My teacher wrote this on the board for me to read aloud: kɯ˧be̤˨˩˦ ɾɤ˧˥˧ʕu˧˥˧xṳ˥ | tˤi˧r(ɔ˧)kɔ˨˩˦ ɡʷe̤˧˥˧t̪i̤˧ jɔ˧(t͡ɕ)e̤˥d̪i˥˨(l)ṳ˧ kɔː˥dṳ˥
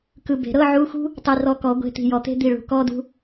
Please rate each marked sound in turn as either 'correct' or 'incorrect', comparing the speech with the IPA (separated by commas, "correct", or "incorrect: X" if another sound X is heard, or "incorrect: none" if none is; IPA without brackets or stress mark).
correct, incorrect: t̪, incorrect: ɭ